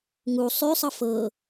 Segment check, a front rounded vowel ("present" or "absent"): present